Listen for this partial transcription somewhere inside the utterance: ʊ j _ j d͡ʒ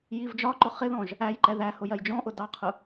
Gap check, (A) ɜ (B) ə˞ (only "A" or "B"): A